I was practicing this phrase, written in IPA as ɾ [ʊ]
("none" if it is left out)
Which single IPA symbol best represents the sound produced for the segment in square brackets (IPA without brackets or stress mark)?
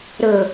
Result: ə